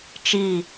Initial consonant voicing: voiceless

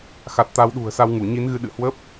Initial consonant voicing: voiceless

